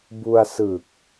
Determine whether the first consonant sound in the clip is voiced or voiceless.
voiced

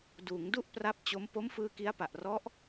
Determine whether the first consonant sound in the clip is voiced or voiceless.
voiced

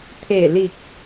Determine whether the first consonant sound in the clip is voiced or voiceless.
voiceless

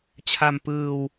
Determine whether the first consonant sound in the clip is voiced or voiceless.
voiceless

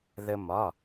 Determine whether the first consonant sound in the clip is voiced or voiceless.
voiced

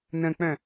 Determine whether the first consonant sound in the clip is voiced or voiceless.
voiced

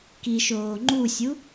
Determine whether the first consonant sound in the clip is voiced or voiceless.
voiceless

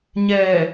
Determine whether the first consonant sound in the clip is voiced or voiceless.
voiced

